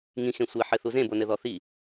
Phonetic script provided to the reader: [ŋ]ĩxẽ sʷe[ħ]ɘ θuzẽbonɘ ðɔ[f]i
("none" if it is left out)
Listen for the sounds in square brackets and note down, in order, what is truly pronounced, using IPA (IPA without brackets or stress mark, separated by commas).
ŋ, ħ, θ